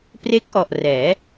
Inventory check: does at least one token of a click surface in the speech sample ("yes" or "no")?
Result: no